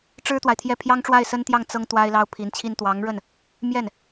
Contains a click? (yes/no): no